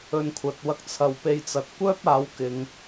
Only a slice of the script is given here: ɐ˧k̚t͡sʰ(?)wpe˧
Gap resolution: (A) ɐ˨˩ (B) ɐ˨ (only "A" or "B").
B